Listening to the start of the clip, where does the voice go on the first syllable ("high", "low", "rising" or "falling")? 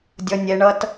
high